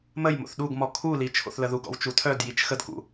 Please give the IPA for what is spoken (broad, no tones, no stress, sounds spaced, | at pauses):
m ə j m o̰ θ ɗ u ɡ m ɔ kʰ u l i t͡ʃʰ o̰ θ l ə ð u ɡ ɔ̰ w t͡ʃ u tʰ œ d j i t͡ʃ x ə d k ṵ